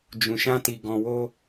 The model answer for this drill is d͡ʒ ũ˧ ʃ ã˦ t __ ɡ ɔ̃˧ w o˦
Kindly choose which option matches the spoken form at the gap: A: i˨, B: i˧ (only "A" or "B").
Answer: B